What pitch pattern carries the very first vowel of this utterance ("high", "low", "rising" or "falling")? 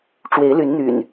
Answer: rising